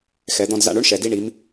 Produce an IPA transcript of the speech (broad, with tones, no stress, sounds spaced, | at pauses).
x ɛ˩˧ d̪ ɔ̃˧ d z a̰˧ ɳ o˥ ɳ ʃ ɛ˩ d i˧ ɳ i˩˧ m